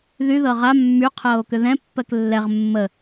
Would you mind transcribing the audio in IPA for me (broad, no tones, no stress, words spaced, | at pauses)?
ðy ðɤʁa mːy qʰɤːo̯kʏðɛ̃ pːɜklːɛʁ mːə